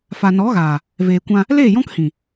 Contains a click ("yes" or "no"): no